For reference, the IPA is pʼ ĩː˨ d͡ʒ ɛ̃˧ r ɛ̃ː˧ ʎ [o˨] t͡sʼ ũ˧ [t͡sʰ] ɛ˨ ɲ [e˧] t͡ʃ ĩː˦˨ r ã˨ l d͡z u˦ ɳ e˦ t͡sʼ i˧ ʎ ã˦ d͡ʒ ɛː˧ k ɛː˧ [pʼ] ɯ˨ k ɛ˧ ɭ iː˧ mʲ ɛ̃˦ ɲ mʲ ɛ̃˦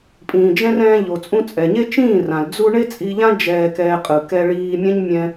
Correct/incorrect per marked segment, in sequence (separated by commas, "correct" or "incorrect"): correct, incorrect, incorrect, incorrect